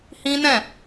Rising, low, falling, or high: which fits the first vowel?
high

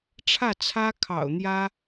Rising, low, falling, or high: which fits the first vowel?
falling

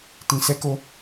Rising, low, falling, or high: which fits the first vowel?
low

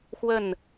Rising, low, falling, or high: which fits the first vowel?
falling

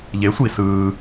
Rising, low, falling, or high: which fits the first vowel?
rising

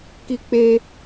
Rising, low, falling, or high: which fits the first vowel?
high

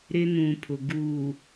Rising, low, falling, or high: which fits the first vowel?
high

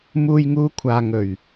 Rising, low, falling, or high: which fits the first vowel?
low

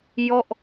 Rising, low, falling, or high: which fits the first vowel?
falling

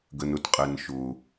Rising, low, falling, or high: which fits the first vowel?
low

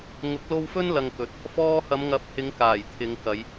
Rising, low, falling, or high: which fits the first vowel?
rising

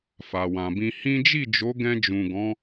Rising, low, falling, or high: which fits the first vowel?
low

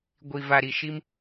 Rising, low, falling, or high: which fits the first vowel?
low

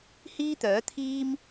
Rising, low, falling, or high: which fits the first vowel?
high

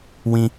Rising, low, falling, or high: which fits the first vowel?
high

